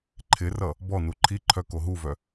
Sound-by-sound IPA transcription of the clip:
ǃʰ ɪ r ʌ | b ɔ n u ǃʰ i ǃʰ œ k o ɦ u v œ

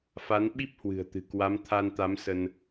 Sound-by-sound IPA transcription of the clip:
f a˨˦ n ɓ i˦˥ p̚ h w ɨ̤˨˩ ə̯ t̪ ɨ̤˨˩ k w a˨˦ m t̪ʰ a˧ n t̪ a˨˦ m s ə˧ n

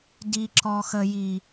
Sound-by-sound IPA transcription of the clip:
d i˨ ǁ ɔ˨ x ə˨ j i˨

